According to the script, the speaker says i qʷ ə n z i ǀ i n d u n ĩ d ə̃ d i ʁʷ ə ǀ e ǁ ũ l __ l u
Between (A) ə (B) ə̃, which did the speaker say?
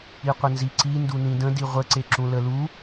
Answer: A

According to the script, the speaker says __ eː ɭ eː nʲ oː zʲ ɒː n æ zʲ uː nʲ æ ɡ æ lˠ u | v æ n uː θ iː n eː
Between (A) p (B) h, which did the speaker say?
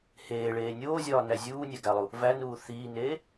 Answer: B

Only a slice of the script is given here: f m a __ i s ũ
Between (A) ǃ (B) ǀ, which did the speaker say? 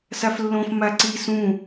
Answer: B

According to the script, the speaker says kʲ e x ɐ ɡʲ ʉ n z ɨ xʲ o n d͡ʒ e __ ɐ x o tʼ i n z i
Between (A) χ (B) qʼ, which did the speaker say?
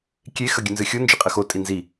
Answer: B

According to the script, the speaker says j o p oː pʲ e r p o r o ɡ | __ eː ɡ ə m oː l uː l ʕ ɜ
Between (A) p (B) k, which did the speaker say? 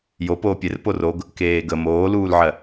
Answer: B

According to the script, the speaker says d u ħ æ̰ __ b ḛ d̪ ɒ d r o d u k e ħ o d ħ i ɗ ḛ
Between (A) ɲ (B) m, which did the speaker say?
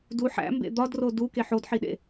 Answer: B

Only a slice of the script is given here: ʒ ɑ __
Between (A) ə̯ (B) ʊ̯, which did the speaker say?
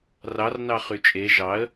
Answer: A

